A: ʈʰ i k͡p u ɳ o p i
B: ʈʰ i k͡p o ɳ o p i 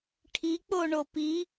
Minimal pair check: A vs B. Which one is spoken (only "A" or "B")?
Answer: B